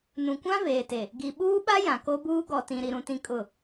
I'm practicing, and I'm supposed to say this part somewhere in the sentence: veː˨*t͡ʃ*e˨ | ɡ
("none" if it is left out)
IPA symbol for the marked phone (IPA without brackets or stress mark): t